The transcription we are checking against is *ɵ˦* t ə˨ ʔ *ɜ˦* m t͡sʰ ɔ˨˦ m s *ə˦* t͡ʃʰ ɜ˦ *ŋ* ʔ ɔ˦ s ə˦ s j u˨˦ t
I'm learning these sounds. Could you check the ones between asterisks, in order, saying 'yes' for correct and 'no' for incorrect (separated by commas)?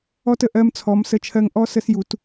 no, yes, yes, yes